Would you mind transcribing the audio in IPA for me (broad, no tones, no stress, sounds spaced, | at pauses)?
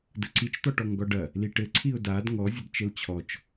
d ə ǀ i t͡ʃ t̪ ɔ ʈ ɔ ŋ ɡ ɔ ɖ ɐ | l i ʈ ɘ ǀʰ i ʊ̯ d a d ŋ ɔ zʲ ə d t͡ʃ ɘ l t͡ɕʰ ɔ t͡ʃ